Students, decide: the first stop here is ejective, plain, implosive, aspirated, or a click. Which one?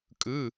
ejective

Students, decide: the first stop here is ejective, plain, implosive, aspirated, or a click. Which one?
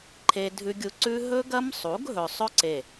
click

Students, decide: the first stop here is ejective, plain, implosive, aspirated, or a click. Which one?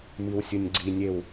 click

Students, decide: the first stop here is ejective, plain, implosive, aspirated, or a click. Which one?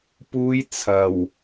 plain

